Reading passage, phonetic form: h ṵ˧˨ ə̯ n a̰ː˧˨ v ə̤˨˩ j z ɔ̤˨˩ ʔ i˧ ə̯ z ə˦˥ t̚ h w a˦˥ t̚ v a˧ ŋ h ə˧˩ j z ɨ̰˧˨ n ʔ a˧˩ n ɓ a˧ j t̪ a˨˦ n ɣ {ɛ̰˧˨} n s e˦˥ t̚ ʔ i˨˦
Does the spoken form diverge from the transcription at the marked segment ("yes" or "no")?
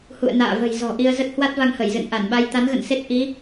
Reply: yes